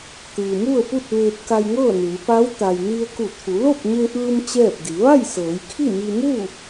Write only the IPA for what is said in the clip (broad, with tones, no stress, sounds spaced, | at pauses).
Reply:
t̪ ɯː˩ m u˥˨ ə̯ p u˥˨ t̚ ʋ eː˧ p̚ k a˧ j ŋ ɤː˥˨ n ɯː˩˧ p a˧˥ w t̪ a˩ j n i˧ ə̯ k u˧˩ t̪ʰ u˩˧ l o˥˨ p̚ ɲ e˧ ʔ ɯː˧ m t͡ɕ ɛː˥˨ p̚ d i˩˧ ʋ a˥˨ j s ɤː˩˧ j kʰ i˥˨ m i˧ m u˥˨